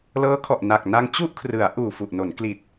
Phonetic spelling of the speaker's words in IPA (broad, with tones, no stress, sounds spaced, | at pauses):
l ɤː˦˥ kʰ ɔ˨˩ ʔ n a˨˩ k̚ n a˧ ŋ t͡ɕ u˥˩ ʔ kʰ r ɯ˩˦ a̯ ʔ uː˨˩ f u˨˩ ʔ n o˩˦ n k l i˨˩ t̚